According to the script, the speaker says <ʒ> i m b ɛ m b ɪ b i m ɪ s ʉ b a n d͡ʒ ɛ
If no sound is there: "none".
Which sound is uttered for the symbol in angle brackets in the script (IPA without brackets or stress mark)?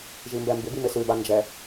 ʒ